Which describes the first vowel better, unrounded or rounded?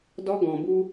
rounded